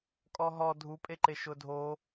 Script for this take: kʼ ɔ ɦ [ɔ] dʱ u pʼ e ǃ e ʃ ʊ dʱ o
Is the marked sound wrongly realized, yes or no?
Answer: no